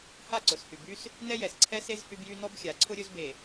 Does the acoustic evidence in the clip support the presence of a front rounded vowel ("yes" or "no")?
yes